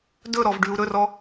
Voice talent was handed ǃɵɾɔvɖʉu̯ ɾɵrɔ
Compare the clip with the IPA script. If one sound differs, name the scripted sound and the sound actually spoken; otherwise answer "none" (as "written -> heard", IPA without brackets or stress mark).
ǃ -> d